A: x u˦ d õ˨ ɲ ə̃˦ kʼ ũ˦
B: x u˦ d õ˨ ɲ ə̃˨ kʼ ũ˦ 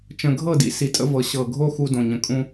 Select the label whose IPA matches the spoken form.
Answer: B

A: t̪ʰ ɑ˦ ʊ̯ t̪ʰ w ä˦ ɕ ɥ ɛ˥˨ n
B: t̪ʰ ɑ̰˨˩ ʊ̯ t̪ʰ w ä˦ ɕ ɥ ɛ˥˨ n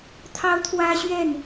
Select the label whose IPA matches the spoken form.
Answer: A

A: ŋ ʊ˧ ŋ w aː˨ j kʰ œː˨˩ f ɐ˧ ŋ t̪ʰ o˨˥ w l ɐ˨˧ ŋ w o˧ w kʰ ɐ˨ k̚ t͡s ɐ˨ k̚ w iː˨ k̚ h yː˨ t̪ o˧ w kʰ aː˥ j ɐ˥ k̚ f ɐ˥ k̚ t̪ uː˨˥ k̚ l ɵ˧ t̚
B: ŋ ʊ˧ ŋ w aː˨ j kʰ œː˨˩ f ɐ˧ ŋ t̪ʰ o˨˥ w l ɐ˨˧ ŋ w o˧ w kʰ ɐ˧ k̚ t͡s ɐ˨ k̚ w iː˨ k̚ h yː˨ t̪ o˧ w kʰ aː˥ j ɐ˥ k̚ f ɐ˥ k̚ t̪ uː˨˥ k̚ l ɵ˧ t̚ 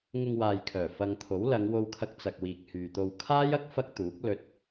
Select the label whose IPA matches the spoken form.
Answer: B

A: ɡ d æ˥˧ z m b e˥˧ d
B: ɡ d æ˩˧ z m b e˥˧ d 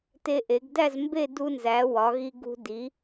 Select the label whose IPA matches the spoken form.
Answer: A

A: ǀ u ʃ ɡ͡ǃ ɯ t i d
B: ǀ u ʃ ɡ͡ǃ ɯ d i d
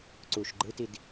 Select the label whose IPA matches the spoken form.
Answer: A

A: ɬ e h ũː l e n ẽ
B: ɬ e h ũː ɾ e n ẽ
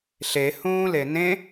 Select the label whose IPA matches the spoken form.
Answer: A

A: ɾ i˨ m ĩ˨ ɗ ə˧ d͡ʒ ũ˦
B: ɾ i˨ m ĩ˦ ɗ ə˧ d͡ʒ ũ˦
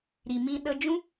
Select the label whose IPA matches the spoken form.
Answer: B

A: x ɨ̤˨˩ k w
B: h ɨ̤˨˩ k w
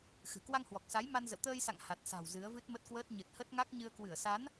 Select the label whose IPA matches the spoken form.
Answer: A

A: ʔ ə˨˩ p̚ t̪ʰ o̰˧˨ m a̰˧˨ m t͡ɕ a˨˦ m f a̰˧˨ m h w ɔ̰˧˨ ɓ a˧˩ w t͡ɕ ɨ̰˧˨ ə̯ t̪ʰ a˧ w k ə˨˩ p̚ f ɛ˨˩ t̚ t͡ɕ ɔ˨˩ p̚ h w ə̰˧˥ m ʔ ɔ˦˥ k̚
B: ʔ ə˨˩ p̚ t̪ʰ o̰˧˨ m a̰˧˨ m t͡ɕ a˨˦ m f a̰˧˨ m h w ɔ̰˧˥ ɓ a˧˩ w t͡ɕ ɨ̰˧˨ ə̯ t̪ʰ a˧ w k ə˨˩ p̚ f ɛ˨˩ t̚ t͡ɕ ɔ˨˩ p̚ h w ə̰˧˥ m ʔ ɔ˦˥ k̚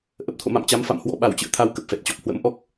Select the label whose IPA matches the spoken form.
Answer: B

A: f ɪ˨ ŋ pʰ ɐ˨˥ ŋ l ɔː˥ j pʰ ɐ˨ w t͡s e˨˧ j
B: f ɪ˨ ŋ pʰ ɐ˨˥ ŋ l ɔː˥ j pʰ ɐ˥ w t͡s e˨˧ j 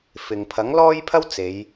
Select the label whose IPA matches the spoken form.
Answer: B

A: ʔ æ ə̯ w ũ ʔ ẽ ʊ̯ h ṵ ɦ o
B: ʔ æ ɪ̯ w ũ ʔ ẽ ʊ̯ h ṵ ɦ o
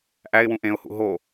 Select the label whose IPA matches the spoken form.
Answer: B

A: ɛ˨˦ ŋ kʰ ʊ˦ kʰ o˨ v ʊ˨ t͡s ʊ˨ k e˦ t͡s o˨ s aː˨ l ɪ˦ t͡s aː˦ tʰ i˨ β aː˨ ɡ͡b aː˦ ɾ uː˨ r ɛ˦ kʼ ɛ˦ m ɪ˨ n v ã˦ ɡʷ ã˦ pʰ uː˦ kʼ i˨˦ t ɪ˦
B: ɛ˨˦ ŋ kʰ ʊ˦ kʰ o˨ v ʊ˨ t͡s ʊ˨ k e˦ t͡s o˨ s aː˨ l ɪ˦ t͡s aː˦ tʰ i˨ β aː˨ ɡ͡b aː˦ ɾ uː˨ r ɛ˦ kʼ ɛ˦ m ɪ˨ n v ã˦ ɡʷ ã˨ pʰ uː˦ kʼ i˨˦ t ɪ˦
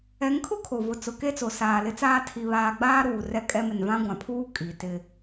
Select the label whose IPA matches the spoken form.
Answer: B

